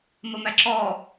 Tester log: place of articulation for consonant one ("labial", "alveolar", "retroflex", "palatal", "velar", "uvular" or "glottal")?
labial